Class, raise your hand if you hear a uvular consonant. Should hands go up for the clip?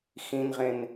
yes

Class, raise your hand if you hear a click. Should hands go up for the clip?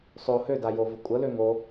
no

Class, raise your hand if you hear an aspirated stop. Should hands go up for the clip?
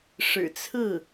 yes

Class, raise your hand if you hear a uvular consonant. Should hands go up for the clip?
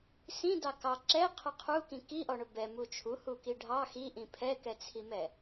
yes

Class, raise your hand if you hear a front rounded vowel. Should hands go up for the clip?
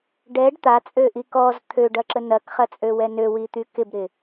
yes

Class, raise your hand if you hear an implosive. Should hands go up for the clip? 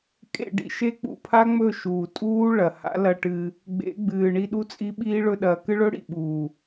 yes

